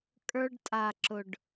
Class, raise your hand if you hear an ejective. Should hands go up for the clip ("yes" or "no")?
yes